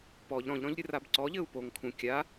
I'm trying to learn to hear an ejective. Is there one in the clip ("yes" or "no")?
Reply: no